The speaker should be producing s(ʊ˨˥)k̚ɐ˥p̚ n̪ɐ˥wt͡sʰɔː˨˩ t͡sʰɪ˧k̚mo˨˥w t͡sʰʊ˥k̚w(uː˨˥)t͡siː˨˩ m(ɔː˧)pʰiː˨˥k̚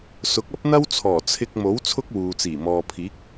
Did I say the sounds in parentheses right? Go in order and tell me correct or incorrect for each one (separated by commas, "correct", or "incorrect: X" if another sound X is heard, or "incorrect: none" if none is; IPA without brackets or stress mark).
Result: correct, incorrect: uː˨, incorrect: ɔː˨